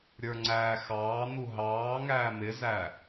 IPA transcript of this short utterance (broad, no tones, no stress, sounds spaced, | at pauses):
ɾʲ ə˞ ŋ͡ǀ æː x ɑː n̪ u ɦ ɑː ŋ æː m ɪ z æ